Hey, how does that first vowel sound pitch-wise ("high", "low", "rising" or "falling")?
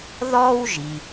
high